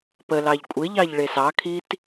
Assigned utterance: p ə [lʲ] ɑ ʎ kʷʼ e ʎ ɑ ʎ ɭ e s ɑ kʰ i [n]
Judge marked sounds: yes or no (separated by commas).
no, no